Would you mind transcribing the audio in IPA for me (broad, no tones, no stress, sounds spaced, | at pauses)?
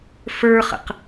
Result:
f ə˞ χ ə̰ q